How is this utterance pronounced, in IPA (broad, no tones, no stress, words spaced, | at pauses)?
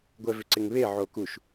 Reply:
ɡʷɛvʏǀɪŋβe ʕokuʃ